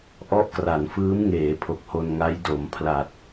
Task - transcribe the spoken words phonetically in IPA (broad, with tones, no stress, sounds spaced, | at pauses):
ʔ ɔ˦˥ ʔ k r a˩˦ n f ɯː˦˥ m ŋ eː˩˦ pʰ o˨˩ k̚ h o˧ n ŋ a˦˥ j d o˩˦ m pʰ l a˨˩ t̚